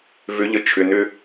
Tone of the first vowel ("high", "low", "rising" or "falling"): rising